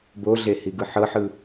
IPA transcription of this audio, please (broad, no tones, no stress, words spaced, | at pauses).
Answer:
boɮehiɡɯ ħɤħɯ